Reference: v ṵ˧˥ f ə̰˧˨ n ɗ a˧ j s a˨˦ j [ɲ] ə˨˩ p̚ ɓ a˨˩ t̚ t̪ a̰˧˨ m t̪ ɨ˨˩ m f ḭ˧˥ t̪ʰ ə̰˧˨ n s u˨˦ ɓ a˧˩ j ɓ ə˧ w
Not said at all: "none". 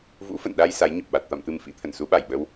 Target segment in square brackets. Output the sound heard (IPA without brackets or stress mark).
ɲ